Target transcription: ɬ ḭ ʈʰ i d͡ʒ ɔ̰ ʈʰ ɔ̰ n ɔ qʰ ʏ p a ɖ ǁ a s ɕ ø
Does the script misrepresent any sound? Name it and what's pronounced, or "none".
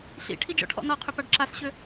none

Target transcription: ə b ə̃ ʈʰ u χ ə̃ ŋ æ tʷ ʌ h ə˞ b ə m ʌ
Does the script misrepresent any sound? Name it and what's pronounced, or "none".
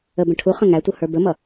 none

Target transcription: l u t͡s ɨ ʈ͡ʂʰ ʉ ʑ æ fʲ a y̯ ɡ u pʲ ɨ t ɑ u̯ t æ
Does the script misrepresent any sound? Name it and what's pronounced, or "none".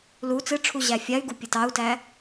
ʉ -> u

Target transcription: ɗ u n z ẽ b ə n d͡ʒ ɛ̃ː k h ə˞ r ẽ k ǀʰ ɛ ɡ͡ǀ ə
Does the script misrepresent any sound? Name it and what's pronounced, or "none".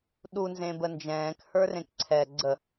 none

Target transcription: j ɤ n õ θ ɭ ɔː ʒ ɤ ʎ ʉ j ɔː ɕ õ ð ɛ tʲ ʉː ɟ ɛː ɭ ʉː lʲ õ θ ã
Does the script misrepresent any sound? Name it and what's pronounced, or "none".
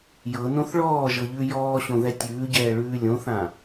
none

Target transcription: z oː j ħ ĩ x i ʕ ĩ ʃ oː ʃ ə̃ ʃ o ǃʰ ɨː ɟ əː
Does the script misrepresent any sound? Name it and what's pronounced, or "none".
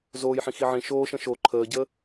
ɨː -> əː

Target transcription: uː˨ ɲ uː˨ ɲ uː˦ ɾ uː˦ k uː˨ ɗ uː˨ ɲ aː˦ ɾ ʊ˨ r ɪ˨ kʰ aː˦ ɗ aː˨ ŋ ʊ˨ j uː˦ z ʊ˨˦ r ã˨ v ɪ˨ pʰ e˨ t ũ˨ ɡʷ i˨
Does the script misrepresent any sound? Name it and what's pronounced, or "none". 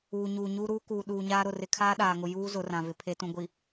none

